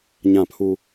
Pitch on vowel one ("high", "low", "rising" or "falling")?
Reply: falling